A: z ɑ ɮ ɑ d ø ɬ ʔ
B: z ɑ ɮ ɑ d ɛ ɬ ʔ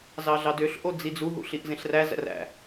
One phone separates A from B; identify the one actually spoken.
A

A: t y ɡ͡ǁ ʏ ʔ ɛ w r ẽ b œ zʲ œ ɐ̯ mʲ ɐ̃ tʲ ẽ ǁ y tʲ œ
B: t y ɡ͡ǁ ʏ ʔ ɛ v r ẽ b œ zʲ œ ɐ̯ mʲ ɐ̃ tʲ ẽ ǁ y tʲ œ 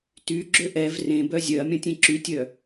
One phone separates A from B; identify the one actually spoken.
B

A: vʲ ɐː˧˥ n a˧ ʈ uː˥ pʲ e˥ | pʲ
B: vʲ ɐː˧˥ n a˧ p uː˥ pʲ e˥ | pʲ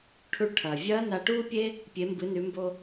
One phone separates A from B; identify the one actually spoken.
A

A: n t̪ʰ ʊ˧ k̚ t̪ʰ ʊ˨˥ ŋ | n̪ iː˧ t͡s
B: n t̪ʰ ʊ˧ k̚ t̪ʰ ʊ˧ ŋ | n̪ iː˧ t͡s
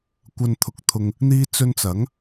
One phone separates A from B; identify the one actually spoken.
B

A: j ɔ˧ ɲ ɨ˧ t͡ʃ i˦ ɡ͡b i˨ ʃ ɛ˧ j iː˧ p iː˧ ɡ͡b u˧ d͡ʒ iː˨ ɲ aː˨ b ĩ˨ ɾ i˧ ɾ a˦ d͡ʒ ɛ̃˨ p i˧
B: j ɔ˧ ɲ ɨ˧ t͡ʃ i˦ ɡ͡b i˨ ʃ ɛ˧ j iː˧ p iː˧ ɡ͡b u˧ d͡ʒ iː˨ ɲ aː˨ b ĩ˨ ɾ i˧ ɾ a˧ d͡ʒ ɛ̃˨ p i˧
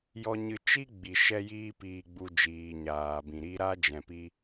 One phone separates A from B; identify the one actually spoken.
A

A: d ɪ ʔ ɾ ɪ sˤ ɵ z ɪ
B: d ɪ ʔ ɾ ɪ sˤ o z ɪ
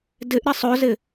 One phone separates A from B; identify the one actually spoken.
A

